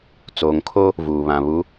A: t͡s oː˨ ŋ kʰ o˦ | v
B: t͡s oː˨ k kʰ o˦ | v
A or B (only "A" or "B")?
A